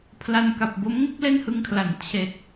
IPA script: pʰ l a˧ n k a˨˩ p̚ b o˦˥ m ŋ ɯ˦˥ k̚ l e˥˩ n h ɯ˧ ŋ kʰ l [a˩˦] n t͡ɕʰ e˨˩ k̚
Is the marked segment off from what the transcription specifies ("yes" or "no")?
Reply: no